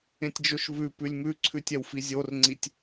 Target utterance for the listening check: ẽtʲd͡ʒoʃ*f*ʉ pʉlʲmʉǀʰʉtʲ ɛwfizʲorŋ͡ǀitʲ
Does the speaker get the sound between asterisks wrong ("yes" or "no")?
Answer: yes